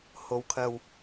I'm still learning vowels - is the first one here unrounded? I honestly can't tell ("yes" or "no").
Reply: no